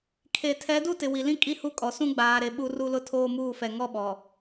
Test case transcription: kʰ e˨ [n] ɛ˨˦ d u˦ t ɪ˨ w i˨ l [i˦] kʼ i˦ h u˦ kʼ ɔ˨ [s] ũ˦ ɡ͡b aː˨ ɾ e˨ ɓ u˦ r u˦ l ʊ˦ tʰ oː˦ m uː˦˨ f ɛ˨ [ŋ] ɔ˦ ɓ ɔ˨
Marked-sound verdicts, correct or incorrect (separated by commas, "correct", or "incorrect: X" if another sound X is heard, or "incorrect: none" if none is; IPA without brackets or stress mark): incorrect: tʰ, incorrect: ĩ˦, correct, correct